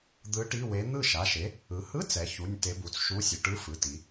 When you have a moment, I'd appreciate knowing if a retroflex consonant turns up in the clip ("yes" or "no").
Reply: yes